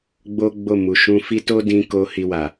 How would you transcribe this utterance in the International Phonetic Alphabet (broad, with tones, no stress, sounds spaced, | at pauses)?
ɡ͡b o˦ ɡ͡b o˦˨ m u˨ ʃ ũ˧ f i˦ t o˦ d ĩ˧ k o˧ h i˧ w a˨